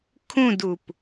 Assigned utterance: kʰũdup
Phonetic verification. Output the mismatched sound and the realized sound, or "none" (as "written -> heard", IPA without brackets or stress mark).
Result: none